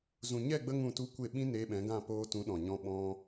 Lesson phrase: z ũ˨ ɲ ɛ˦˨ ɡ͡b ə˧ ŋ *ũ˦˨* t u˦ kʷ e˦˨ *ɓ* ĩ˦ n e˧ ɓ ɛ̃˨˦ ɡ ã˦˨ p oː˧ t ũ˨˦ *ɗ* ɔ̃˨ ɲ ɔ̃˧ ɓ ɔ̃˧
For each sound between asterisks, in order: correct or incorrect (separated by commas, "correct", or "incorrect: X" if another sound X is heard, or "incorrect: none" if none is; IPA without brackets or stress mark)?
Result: correct, correct, correct